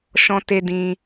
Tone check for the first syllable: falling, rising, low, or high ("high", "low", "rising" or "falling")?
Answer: high